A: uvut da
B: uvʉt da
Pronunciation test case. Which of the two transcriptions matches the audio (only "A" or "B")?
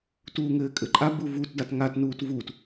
A